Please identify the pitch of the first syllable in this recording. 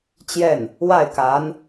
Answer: falling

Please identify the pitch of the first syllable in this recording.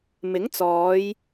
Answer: rising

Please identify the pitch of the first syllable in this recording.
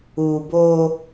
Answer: low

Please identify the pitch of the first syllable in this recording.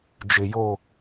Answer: low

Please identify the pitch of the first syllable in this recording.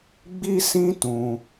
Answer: high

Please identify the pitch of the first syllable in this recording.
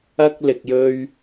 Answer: high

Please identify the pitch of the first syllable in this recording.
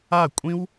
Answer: falling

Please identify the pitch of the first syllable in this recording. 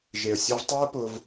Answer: low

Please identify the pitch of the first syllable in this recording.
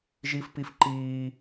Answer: high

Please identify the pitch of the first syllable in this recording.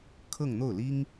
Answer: falling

